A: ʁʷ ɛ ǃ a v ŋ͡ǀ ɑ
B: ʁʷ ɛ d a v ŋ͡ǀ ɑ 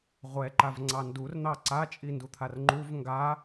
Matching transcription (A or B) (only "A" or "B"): A